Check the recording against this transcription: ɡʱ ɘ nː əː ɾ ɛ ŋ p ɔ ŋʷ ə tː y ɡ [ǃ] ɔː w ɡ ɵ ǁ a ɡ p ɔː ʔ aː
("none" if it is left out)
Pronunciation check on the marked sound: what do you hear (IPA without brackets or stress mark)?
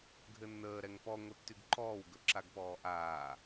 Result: ǃ